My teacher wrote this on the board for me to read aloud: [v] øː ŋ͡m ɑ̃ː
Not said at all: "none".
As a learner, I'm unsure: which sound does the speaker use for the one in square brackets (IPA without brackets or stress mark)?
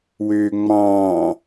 w